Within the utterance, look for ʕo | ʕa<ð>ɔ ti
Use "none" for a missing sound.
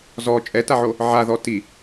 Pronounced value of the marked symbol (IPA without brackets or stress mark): ð